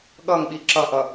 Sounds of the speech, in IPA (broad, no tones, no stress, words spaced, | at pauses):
ɠʌŋɓi ǁʌʔʌ